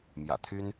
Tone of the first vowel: low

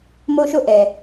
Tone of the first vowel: high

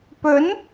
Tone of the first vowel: rising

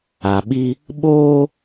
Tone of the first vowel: low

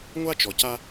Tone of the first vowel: high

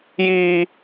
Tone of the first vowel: high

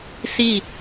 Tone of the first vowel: falling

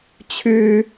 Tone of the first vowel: high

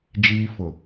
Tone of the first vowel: high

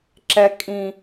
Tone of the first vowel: low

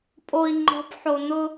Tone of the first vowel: low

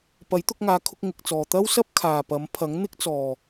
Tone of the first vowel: rising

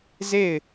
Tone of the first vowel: falling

